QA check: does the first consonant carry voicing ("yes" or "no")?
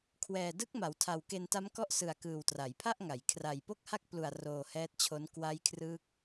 no